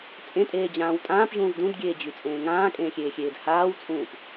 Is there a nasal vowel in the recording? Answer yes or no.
yes